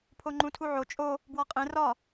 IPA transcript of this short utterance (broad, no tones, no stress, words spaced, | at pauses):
pʰoŋ͡ǃũtʰuʕo t͡ʃʼo | bwɒqʼẽ rɒ